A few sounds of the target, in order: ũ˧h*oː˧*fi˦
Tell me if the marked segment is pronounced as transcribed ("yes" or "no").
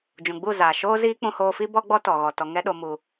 yes